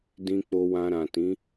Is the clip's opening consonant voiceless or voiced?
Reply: voiced